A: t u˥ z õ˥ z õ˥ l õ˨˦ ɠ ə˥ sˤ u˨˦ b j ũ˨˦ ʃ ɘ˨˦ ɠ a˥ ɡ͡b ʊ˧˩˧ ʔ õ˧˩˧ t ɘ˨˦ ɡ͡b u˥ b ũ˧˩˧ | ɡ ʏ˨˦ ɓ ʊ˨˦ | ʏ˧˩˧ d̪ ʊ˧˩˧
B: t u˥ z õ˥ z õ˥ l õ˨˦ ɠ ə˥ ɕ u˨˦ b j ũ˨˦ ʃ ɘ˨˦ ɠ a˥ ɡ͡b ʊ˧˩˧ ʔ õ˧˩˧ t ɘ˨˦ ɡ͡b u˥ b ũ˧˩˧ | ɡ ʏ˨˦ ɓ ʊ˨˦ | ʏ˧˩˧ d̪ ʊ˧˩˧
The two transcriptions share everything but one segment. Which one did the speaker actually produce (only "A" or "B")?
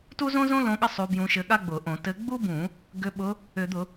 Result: A